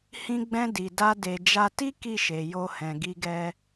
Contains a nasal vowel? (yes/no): yes